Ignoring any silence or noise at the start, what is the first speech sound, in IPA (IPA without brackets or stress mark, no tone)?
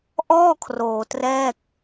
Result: ʔ